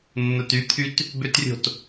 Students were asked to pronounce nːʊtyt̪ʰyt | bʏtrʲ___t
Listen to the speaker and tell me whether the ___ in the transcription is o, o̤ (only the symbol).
o̤